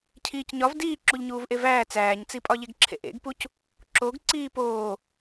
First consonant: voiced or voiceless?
voiceless